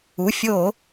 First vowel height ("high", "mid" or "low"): high